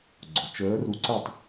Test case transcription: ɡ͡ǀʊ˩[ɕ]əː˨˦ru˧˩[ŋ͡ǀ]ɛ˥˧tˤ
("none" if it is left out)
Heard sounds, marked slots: t͡ʃ, ǀ

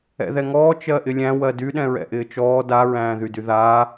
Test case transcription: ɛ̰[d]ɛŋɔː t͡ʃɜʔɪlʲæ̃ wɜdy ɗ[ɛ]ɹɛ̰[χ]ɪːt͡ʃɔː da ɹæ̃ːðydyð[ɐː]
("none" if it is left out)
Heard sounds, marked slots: ð, ɛ̃, ʔ, aː

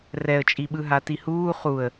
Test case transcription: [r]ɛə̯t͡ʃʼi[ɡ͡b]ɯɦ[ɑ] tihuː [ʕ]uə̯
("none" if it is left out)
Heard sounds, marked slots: r, ɓ, a, χ

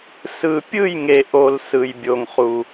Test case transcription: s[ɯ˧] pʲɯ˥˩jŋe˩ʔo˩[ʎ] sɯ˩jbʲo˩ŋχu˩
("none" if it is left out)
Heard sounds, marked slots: ɯ˧, l

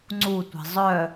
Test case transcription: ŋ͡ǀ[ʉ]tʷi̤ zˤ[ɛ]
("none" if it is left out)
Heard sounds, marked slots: u, œ

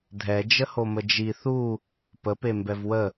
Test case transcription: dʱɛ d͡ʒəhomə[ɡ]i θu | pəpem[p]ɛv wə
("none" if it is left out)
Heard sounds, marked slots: d͡ʒ, b

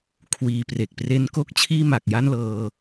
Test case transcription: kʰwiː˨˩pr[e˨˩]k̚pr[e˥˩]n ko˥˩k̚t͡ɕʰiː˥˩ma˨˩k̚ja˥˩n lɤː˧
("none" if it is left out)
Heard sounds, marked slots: e˨˩, e˥˩

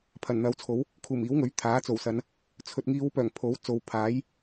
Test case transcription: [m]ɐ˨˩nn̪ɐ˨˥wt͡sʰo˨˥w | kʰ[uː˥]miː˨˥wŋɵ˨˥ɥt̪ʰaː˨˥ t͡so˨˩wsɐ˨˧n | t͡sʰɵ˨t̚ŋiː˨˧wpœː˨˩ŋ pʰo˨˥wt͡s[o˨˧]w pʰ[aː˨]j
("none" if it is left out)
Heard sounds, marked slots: pʰ, uː˨˩, o˨˧, aː˨˥

